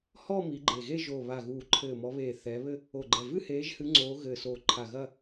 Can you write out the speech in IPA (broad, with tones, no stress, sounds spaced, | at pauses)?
h ɔ˥˧ m i˨˦ ɡ͡ǃ e˧˩ ɣ e˥˧ ʒ o˧˩ β a˧˩ ɣ uː˧˩ ǃʰ ɘː˧˩ m ɔ˨˦ β eː˧˩ θ ɛ˨˦ β ɘ˥˧ | o˧˩ ɡ͡ǃ ɛ˧˩ v ɨ˥˧ h eː˨˦ ʒ h ɨ˨˦ ŋ͡ǀ oː˨˦ ɣ ɘː˧˩ s oː˧˩ ǃʰ a˧˩ ɣ ɐ˥˧